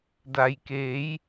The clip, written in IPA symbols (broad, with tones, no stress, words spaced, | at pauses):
da˩jkeː˩˧j